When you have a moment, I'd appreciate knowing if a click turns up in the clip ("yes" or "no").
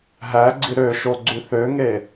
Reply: yes